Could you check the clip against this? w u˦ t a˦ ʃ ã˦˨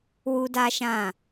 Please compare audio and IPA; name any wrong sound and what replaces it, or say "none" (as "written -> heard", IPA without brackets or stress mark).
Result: t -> d